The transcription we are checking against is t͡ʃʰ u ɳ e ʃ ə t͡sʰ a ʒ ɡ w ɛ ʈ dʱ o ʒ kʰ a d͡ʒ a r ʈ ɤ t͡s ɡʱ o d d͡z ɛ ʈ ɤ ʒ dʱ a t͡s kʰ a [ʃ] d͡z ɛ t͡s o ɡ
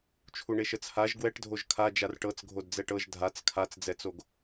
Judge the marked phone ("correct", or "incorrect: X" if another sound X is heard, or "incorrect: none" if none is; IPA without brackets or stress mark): incorrect: t͡s